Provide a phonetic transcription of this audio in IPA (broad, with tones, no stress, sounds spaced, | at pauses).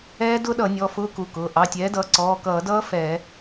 ɛː˦˥ d ʊ˦˥ ɗ ʌ˧˩˧ nʲ ɔ˩˧˩ f ʊː˦˥ k u˩˧˩ k ʊː˩˧˩ ʔ ɑ˩˧˩ tʲ ɛː˩˥ d ʌː˩˥ ǀ ɔː˩˧˩ k ʌː˧˩˧ d ʌː˦˥ f ɛː˧˩˧